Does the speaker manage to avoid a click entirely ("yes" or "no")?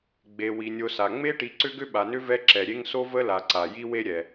no